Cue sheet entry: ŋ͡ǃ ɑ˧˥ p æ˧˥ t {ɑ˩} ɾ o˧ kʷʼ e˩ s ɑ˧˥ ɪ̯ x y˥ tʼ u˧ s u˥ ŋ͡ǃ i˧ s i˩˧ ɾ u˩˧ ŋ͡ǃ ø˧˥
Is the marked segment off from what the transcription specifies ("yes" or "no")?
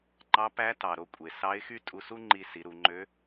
no